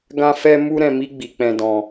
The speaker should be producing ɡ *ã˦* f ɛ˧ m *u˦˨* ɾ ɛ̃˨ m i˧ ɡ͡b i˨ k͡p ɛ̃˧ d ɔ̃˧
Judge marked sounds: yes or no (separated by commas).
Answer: no, no